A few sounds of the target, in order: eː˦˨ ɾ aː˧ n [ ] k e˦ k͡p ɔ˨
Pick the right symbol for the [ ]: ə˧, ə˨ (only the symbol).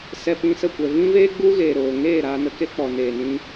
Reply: ə˧